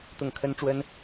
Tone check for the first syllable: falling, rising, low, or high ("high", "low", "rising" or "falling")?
falling